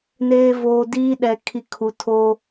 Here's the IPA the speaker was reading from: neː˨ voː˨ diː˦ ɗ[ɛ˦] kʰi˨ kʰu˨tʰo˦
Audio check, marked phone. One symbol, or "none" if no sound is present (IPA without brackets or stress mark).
ɛ˨